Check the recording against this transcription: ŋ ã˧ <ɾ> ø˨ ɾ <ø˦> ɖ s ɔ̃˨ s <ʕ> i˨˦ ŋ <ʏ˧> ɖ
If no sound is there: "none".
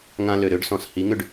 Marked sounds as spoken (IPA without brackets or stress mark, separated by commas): l, ø˦, h, ʏ˧